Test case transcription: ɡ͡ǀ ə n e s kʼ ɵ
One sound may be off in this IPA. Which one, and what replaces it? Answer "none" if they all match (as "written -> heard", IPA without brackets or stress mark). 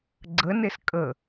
ɵ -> ə